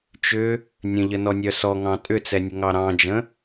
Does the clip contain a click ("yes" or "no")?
no